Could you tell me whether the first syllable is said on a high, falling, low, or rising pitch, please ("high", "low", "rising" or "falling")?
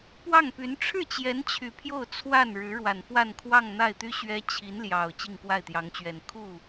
falling